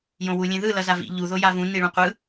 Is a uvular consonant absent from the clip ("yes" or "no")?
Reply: no